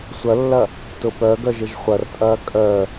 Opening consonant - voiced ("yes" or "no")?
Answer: no